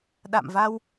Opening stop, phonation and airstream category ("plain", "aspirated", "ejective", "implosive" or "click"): implosive